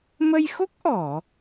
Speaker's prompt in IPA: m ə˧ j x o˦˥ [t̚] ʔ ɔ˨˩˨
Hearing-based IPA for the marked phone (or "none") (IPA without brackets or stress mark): k̚